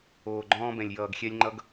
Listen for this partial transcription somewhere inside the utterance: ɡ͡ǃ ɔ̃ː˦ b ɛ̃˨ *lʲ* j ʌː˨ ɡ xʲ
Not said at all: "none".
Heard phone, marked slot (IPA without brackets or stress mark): lʲ